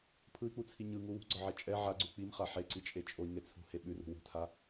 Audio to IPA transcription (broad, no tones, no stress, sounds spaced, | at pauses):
pʰ ɯ i̯ k͡p u t͡sʰ i ɲ ɯ ŋ u w ṳ ɡ͡ǀ ɒ ʕ ɛ t͡ʃʼ ɛ ʕ a ɡ͡ǀ ʉ k͡p i m χ a ħ e ǀ i t͡ʃʼ e t͡ʃʼ o i̯ ŋ e t͡sʰ ṳ h e ɓ ʉ r ṳ w ṳ tʰ a